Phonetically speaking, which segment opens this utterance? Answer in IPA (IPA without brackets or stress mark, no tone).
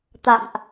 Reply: t̪